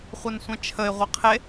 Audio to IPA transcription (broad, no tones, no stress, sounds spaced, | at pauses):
χʷ ɛ n sʷ ɛ̃ t͡ʃʰ ə ɪ̯ ʁʷ ɛ qʰ e